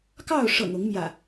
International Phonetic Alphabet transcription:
k ɑ˥˨ ʊ̯ ʂ ɤ̰˨˩ ŋ ʊ˨˦ ŋ m j ä̰˨˩

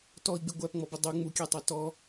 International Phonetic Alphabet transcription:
t ɔ i̯ ɡ͡b ɪ ɡʷ æ p ŋ͡m ɔ b ə dˤ u ŋ͡m u kʲ æ tˤ æ t ɔ

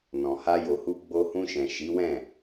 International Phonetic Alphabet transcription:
n ɔ̃˨ h a˧ j o˨ h u˧ ɡ͡b o˧ h ũ˧ ʃ ɛ̃˨ ʃ i˨˦ w ɛ̃˦˨

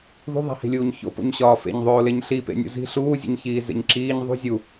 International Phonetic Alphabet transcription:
ð ṳ ðˤ æ̤ h i̤ lʲ uː ɲ ç o̰ p o̰ ɲ ɕ ɒː f ḛ ɲ ðˤ oː l e ɲ ɬ i p ḛ nʲ ṵ z i̤ ɬ uː zʲ ṵ ɲ ç iː z ḛ ɲ ǁ iː ɲ ðˤ ṳ zʲ u

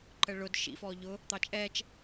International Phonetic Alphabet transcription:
ǃ ə ɭ ʊ d ʃ ḭ f ɔ ʎ ʊ | t̪ ɑ t͡ʃʼ ɛː t͡ʃ

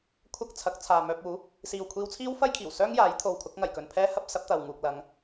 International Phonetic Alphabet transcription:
kʷʰ ɐ˥ k̚ t͡sʰ ɐ˨˥ k̚ t͡sʰ aː˨ m œː˧ p̚ uː˨˥ | s iː˨ w kʷʰ iː˧ w t͡sʰ iː˥ w f ɐ˥ j kʰ iː˨˩ w s œː˥ ŋ j aː˨˥ j t̪ʰ o˨ w kʰ ʊ˨˥ k̚ ŋ ɐ˨˩ j k ɵ˨ n pʰ ɛː˥ h ɐ˥ p̚ s ɐ˨˥ p̚ t̪ ɐ˨ w ŋ uː˨ k̚ l ɐ˨˧ ŋ

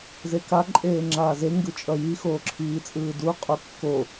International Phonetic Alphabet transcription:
z e k a ǃʼ eː ŋ͡ǁ aː z e ŋ ɡ ɯ t͡ʃʼ ʌ j i x oː ǁʰ iː t͡sʼ ɯː d u qʼ u kː o

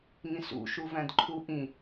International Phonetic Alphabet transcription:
ŋ ĩ s ṵ ʃ u v æ̃ d ǃʰ u ʔ ĩ

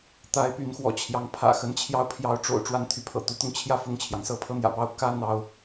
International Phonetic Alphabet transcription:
t̪ a˨˦ ɪ̯ p y˨˦ n x w ɔ̰˨˩ t͡ɕʰ j ɑ˨˦ ŋ pʰ ä̰˨˩ x ə˨˦ n t͡ɕʰ j ɑ˦ ʊ̯ pʰ j ɑ˨˦ ʊ̯ ʈ͡ʂ o̰˨˩ ʊ̯ ʈ͡ʂ w a˦ n t̪ʰ y˨˦ pʰ ɤ̰˨˩ t̪ u˨˦ t̪ ʊ˧ ŋ t͡ɕʰ j ä˥˨ f ʊ˥˨ ŋ t͡ɕʰ j ɑ˩ ŋ s ɤ˦ pʰ ɤ˦ n̪ j ä̰˨˩ p ɑ˦ ʊ̯ k ä˦ n̪ ɑ˥˨ ʊ̯

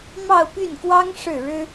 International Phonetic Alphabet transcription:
m ɑ˥˧ ʊ̯ p y˥˩ n k w ɑ˥ ŋ ʂ ɻ̩˥˩ ɻ ɻ̩˥

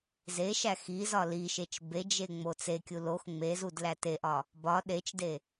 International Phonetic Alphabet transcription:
z e ʃ æ x i z ɒ l i ʃ e t͡ʃ b e d͡ʒ e ŋ͡m o t͡s e kʲ u l o x ŋ͡m e z u d l æ t e ʔ ɒ | b ɒ ɗ e t͡ʃ d e

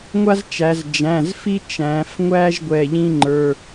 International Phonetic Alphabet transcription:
ŋʷ a˦ z t͡ʃ æ˩˧ z d͡ʒ æ̃˩˧˩ z f i˦ t͡ʃ æ̃˩˧ f ŋʷ æ˦ ʒ ɡʷ ɛ˩˧˩ ʎ ĩ˦ ŋ͡ǃ ə˞˩˧˩

